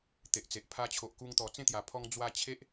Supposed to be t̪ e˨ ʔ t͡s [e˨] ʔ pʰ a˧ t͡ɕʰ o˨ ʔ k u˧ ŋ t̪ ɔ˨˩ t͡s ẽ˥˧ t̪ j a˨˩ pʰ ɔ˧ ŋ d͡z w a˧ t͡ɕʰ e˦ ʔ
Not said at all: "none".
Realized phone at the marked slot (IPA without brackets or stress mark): e˨